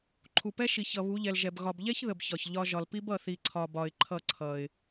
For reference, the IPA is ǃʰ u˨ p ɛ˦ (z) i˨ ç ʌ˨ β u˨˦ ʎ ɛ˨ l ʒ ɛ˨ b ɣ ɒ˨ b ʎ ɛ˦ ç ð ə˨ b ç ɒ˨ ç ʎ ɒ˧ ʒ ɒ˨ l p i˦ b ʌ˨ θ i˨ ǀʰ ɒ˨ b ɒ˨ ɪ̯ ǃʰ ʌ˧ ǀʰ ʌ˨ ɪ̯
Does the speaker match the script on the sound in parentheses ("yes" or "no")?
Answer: no